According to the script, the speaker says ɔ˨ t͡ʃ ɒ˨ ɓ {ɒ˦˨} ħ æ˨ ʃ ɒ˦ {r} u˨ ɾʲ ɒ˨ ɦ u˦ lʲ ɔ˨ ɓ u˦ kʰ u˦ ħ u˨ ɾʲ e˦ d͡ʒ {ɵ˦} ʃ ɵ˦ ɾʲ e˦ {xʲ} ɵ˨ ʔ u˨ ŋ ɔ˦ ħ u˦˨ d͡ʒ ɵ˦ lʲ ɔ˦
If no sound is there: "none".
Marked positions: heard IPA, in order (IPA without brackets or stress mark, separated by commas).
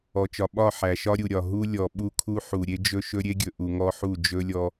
ɒ˦˨, ɾʲ, ɵ˦, ɡʲ